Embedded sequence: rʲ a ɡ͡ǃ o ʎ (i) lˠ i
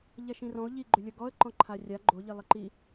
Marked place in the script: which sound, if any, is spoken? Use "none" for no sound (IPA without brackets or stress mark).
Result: i